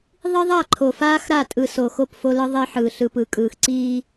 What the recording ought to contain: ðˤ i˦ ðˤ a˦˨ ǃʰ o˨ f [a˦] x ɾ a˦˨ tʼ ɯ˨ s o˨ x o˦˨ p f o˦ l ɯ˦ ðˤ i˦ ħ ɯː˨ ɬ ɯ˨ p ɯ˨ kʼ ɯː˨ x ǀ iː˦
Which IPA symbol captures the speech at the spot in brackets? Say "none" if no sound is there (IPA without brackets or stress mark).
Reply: aː˦